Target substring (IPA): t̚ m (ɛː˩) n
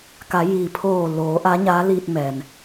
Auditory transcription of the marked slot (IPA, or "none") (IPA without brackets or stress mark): ɛː˩